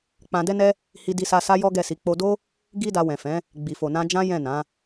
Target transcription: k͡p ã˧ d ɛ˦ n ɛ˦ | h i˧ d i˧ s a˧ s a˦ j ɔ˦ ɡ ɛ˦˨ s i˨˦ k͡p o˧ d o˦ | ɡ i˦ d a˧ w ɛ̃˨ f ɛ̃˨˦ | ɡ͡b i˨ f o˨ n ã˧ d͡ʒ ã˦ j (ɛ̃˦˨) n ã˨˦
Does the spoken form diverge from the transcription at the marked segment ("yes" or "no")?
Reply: no